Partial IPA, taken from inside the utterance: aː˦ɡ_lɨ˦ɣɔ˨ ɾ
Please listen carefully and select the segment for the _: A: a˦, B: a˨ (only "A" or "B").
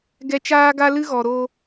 A